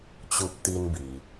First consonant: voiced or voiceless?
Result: voiceless